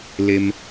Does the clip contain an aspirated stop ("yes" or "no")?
no